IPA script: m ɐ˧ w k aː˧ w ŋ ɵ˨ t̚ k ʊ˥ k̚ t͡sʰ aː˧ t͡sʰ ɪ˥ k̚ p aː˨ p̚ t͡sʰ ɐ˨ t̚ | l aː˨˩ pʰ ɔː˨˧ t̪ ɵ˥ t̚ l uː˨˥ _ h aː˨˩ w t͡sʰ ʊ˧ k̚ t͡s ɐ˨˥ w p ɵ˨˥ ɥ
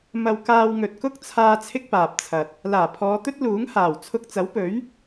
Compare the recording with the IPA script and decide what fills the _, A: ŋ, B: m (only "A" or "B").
A